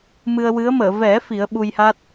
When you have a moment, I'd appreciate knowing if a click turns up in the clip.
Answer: no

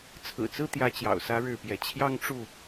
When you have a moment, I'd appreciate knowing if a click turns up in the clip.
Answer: no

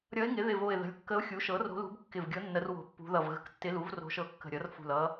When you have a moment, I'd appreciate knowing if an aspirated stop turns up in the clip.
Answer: no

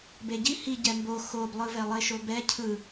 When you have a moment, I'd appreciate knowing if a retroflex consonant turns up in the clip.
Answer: no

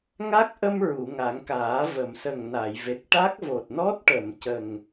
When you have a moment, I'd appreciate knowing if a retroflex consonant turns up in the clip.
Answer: yes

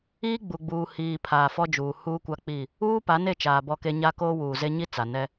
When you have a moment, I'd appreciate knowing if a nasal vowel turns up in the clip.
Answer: no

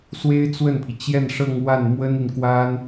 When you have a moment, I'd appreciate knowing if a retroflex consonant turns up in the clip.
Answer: yes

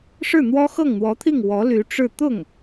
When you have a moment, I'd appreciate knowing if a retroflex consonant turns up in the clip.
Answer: yes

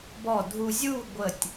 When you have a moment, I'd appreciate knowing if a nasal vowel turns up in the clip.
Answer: no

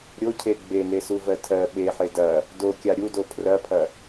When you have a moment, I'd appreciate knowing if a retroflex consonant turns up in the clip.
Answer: no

